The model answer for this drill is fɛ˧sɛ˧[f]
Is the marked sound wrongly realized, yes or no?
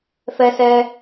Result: yes